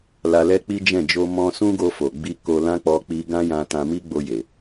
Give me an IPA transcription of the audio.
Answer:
l a˧ l ɛ˦ k͡p i˦ d͡ʒ ɛ̃˦˨ d͡ʒ o˧ m ɔ̃˧ s ũ˦ ɡ o˧ f o˨ ɡ͡b i˧ k o˧ l ã˦ k͡p ɔ˦ k͡p i˦ ɡ ã˦ j ã˧ t ã˧ m i˦ ɡ͡b o˧ j e˨

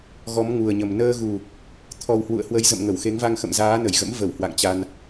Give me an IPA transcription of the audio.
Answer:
ɣ ɔ˨˦ m ŋ u˨˩ ə̯ ɲ ə˨˩ m n əː˧ ɣ u˨˩ | t̪ʰ ɔ˨˩ w h w ṵ˧˨ ə̯ h w ə˨˦ j z ə̰˧˨ m ŋ ə˧˩ w x e˨˦ ŋ v a˧ ŋ x ə̰˧˨ m z aː˨˦ n ə˧˩ j ɣ ə̰˧˥ m v ə˧˩ w h w a̰˧˨ ŋ t͡ɕ a˧ n

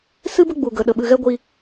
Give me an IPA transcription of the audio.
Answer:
s ɨ˦ b ə˦ ɡ͡b u˧ ɡ ə˧ ɗ ə˧ ɓ ɨ˧ ɣ ɛ˦ ɡʷ i˦

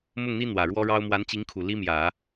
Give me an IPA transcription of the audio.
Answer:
m ʊ˥˩ ŋ n̪ i˥ n̪ w ä˨˩ ɻ w ɔ˥ ɻ ɑ˥ ʊ̯ m w a˧˥ n t͡ɕ i˧˥ ŋ kʰ u˨˩ l i˥ m j ä˨˩˦

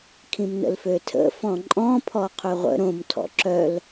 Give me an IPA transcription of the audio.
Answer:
kʰ ĩ m n ə̰ l f ø tʰ ə̰ f ɔ̃ ǃʼ ɔ̃ pʰ ɔ qʰ ø ʁʷ ə̰ ɾ õ m tʰ ɔ̰ ǁ œ l

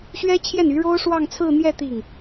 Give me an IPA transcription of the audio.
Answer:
ɕ ɥ ɛ˥ t͡ɕʰ j ɛ˥˩ n y˧˥ ɻ o˥ ʊ̯ ʂ w ɑ˥˧ ŋ t͡sʰ ɹ̩˥˧ n̪ j ɛ˥˧ t̪ i˥˩ ŋ

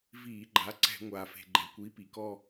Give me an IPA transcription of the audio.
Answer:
v iː˧˩˧ ɡ͡ǃ a˩˥ ǀ ɛ̤˧˩˧ ŋʷ aː˩ f e̤˩ ɡ͡ǃ ɛ˩ kʷ i˩˥ p i˩ k ɔ˥˧

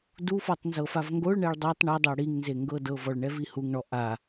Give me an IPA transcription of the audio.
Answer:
d u f ɔ tˤ n z ɤ f a v ŋ ɡ o ɭ ɳ ɛ ɭ dˤ o tˤ ɳ ɤ dˤ ɤ ɽ i ŋ n z e ŋ ɡ ɤ d ɤ v ɔ ɭ ɳ ɛ v i h u ŋ ɳ ɔ ʔ a

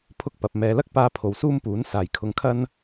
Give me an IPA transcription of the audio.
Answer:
pʰ ʊ˥ k̚ p ɐ˨ p̚ m ɛː˨ l ɐ˥ k̚ p aː˧ pʰ o˨ w s uː˥ m p uː˨˥ n s aː˨ j kʰ ʊ˧ ŋ kʰ ɐ˥ n

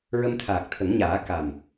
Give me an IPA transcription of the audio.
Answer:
ɹ ə˧ m t̪ʰ aː˨˩ k̚ t̪ʰ ə˨˩˦ ŋ ɲ aː˨˩˦ k a˨˩ m

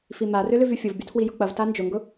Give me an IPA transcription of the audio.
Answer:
f i m a r ʏ l ʏ v y fʲ ʊ v bʲ u tʰ w i j ʊ k͡p ɐ v t a n d͡ʒ ʊ ŋ ɡ ʊ

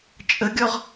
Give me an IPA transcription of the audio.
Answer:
t͡ʃʼ ə ɡʲ ɔ ʁ

